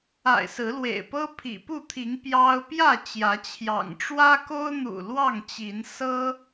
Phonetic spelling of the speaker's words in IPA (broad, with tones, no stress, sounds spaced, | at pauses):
a̰˨˩ ɪ̯ s ɹ̩˨˦ l w ḛ˨˩ ɪ̯ p ɤ˦ pʰ ḭ˨˩ p u˥˨ t̪ʰ i˨˦ ŋ p j ɑ˦ ʊ̯ p j ä˥˨ t͡ɕ j ä˨˦ t͡ɕʰ j ɑ̰˨˩ ŋ ʈ͡ʂ w ä˦ k o˦ ʊ̯ n̪ ṵ˨˩ l w ɑ˥˨ ŋ t͡ɕ i˨˦ n s ɤ˦